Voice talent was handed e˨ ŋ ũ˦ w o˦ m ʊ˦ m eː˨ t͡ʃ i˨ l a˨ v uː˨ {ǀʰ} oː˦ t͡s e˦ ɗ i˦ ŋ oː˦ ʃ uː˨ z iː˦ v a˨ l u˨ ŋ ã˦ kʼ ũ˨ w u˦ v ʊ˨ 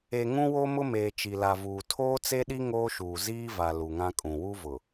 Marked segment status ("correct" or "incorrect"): incorrect